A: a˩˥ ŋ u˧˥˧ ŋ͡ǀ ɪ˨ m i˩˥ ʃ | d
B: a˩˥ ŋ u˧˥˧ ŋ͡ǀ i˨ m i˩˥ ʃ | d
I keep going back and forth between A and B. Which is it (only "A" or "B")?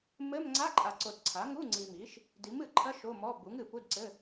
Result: B